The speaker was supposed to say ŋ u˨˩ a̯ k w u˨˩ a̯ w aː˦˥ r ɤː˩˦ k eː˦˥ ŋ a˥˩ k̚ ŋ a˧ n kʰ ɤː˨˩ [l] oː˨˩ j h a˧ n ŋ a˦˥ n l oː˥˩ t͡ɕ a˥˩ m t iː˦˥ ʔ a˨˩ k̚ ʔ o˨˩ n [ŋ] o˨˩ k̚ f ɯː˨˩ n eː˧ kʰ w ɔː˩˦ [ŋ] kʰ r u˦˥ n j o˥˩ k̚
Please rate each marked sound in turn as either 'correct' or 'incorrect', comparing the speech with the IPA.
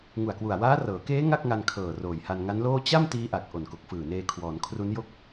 incorrect, incorrect, incorrect

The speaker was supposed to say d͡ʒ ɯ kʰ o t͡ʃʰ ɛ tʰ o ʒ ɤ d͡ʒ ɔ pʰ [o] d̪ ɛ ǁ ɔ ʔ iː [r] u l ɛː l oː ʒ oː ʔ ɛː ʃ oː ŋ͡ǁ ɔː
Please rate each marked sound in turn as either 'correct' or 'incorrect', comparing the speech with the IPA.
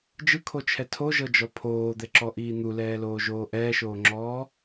incorrect, incorrect

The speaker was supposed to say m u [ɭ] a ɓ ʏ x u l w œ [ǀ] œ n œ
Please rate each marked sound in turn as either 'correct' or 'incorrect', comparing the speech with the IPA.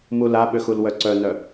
incorrect, correct

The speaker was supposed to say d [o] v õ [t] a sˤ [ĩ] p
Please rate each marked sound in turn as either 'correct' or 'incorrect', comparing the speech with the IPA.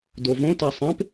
correct, correct, incorrect

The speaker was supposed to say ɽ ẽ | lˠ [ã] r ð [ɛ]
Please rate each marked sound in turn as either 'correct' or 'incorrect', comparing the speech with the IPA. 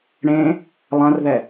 correct, correct

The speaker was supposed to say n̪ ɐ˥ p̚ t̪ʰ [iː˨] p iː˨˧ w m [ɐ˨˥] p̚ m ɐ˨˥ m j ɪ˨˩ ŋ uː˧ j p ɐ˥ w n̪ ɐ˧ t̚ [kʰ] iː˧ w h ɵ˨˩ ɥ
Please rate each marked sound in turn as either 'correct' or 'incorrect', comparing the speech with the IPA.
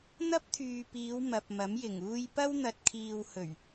incorrect, incorrect, correct

